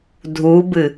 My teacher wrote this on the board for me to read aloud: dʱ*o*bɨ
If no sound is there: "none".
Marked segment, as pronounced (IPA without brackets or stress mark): u